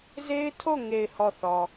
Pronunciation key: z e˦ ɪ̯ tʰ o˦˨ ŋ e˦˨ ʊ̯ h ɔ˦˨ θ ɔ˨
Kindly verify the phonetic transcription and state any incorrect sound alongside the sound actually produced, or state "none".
ʊ̯ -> ɪ̯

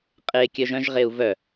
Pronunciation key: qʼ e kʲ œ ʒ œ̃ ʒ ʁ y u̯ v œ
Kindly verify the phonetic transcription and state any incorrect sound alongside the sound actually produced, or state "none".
y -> e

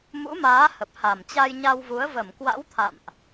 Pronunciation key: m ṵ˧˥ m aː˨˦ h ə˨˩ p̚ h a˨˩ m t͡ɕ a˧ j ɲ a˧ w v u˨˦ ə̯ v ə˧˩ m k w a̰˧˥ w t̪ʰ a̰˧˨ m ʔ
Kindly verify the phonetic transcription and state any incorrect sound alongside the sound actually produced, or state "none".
none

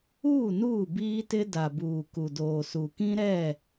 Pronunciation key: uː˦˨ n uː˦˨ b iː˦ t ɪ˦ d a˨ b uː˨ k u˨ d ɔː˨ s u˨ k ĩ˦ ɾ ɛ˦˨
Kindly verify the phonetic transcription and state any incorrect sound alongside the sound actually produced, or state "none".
ɔː˨ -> oː˨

